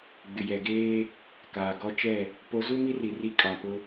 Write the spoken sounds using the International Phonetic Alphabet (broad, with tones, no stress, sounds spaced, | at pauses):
ɡ͡b ɪ˨ j ɛ˨ ɡ eː˦ | k aː˨ ɡ ɔ˦ t͡ʃ ɛ˦˨ | p o˨˦ z u˦ m i˦ r i˨ r i˦ kʼ ã˨ p ʊ˦